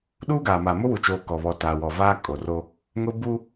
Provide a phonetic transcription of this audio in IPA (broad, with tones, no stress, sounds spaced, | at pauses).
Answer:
ɗ uː˦ ɡ aː˨ m a˨ m ʊ˦ w u˨ t͡ʃ oː˨ k ɔ˨ β ɔ˨ t aː˨ w ɔ˨ v aː˦ kʼ o˨ r o˦ | ŋ ʊ˦ b u˦